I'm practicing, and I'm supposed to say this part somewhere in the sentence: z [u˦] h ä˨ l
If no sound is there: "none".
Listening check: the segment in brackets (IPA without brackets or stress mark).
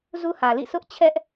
u˦